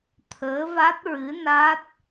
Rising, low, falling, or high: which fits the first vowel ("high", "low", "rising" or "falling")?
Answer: rising